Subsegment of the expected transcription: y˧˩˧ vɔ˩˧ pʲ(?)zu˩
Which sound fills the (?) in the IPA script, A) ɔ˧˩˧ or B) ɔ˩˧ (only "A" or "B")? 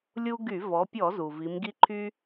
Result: A